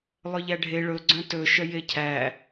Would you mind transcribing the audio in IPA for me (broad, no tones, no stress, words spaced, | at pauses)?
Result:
lˠœʎæɖʱe ɭɵ ɡ͡ǀœ̃tɵ ʃœjecʰæ